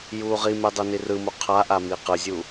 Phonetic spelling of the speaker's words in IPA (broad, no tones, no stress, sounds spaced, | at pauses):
j uː ʁ i m e dˤ u n i r ɯ m o qʰ a ʔ a m i q ɯ zʲ u